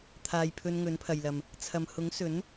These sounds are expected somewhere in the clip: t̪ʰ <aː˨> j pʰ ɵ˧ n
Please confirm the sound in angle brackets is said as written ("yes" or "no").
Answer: yes